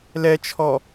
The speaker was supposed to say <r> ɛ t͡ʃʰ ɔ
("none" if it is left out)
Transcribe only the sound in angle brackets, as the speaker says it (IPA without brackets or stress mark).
l